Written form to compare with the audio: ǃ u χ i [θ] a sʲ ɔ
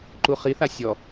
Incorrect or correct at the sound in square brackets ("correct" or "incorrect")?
correct